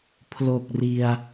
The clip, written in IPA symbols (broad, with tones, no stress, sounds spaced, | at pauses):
pʰ l o˨˩ k̚ r i˨˩ a̯